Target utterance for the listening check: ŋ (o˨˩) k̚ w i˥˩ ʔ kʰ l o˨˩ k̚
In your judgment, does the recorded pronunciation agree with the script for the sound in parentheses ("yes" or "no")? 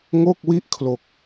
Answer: no